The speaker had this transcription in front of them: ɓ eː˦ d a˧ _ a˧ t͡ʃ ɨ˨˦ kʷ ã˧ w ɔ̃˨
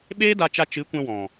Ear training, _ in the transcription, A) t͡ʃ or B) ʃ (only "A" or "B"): A